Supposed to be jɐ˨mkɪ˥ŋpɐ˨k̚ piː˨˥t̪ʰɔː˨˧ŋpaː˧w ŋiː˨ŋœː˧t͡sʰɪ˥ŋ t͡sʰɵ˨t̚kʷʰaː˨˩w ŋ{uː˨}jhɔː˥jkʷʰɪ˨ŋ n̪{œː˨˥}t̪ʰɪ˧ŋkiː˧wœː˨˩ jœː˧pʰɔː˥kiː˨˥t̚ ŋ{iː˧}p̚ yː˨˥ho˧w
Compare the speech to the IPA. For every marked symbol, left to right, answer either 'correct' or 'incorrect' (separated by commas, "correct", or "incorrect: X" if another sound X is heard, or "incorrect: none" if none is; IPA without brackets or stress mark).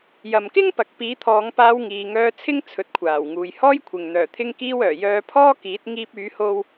correct, incorrect: œː˨˩, correct